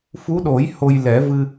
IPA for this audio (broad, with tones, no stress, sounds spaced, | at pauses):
f u˧˥ ɗ o˨˩˦ j h o˧ j l ɛ˨˩˦ v ɨ˧